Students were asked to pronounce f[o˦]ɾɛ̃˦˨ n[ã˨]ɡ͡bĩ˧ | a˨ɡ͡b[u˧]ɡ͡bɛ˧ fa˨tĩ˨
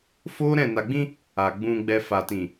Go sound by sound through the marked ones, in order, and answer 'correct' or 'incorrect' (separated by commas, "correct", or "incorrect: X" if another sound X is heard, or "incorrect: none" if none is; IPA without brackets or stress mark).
correct, incorrect: a˨, incorrect: ũ˧